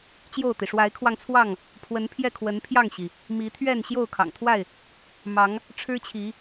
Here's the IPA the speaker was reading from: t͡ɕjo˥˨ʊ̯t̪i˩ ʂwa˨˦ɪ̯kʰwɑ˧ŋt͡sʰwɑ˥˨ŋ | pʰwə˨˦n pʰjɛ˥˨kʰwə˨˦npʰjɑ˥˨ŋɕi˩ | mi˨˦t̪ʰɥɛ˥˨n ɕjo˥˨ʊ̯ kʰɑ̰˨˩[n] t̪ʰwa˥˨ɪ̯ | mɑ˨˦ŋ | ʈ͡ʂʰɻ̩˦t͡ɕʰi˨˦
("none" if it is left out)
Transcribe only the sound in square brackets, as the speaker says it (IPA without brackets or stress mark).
ŋ